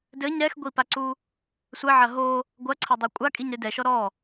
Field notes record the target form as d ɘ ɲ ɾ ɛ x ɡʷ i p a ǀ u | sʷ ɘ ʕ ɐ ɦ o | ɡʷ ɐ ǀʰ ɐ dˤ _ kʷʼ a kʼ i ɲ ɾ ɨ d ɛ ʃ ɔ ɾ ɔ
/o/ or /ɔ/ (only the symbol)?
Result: o